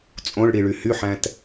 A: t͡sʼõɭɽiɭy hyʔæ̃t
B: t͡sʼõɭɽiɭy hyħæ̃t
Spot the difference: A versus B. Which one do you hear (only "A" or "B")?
B